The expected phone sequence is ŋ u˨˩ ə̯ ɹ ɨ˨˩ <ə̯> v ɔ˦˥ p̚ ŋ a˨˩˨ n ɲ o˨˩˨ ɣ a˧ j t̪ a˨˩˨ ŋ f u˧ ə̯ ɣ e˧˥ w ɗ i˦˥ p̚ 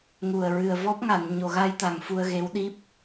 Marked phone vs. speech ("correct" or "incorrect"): correct